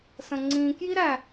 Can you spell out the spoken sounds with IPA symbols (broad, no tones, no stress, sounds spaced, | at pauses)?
s ə̃ ŋ͡ǀ ĩ k j i ɾ æ